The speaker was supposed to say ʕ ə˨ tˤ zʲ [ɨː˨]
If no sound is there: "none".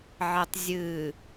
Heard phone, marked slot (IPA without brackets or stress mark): ɨː˨